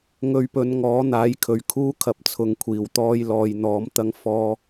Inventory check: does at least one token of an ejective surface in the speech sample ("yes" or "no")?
no